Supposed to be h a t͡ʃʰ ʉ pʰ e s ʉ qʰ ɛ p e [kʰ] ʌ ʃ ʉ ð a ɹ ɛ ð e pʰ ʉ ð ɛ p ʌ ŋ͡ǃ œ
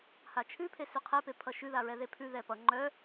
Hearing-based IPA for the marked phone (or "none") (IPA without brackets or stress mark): pʰ